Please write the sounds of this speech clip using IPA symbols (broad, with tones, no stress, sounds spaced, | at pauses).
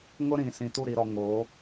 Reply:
ŋ ʊ˦ ɾ ĩ˨ s ĩ˨ t u˦˨ ɾ i˨ ɾ ɔ˨ ŋ o˨˦